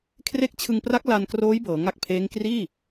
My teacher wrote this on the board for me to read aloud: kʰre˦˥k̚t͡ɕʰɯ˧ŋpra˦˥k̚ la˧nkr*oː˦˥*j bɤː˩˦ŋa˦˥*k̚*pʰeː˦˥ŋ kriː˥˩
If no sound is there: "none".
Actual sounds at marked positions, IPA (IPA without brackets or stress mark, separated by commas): oː˦˥, k̚